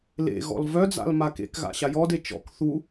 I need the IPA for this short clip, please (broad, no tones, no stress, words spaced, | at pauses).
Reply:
lḛɣɔ̰l vœd͡za̰l makḛkɣa̰ ɕajɔde t͡ʃɔ̰k θu